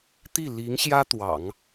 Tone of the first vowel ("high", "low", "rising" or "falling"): falling